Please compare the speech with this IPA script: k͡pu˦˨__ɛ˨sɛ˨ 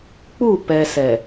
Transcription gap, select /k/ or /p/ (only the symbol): p